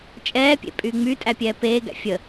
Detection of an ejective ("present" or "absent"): present